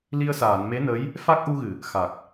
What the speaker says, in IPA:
l i˧ ə̯ s aː˨˩˨ n m e˧˥ n ə˧˥ j | f a˦˥ k̚ ʔ u˧ ɣ ɨ˨˩˨ | x a˨˩ k̚

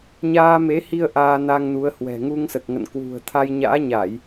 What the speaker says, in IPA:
ɲ aː˧ m e˨˦ h i˧ ə̯ ʔ aː˧ n a˧ ŋ n u˨˦ ə̯ h w ɛ̤˨˩ ŋ u˧ ŋ s ə˨˩ t̚ ŋ ə̰˧˨ n k w ṳ˨˩ ə̯ t̪ʰ a˧ j ɲ a̰ː˧˥ ɲ a˧˩˨ j

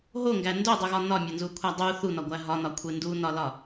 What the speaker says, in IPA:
ɦ o ŋ ɡ æ n d o dˤ u ɣ ɒ n ɒ mʲ ɒ n z u kʷʰ æ dˤ u θ u n ɒ ɡʷ æ ɦ ɒ n ɒ kʷʰ e n d u n ɒ l ɒ

